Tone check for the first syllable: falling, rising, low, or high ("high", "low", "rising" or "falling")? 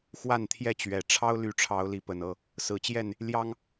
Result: falling